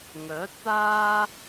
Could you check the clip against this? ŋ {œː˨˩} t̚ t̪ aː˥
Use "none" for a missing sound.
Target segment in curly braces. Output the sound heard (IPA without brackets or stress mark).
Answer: œː˨˥